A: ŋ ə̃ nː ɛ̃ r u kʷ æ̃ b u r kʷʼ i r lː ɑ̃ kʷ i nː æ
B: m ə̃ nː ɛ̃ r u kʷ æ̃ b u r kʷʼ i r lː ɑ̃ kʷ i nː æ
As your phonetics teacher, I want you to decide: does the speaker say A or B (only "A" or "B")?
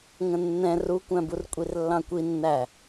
A